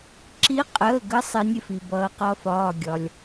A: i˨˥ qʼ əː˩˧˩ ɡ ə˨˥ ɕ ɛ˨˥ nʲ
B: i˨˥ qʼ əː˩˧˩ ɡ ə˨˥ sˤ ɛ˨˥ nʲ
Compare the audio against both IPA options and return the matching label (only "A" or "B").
B